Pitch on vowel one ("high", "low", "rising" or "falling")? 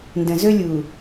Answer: low